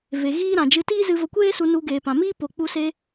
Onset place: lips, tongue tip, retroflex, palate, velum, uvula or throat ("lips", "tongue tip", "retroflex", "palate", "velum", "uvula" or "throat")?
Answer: lips